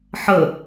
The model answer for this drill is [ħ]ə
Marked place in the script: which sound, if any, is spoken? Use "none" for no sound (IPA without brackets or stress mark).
ħ